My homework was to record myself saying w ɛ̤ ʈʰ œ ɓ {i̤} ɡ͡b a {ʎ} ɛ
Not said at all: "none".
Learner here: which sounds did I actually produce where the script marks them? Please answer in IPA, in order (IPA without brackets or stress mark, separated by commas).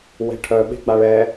e̤, ɭ